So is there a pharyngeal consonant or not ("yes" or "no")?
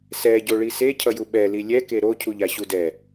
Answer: no